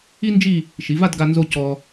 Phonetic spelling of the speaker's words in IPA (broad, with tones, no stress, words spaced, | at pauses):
i˥nd͡ʒi˥˧ | ʃi˩˧va˥˧dɡa˧ nzo˧ cɔ˧